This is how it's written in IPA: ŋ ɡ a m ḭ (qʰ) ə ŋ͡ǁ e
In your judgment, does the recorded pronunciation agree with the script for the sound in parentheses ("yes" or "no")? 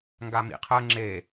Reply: yes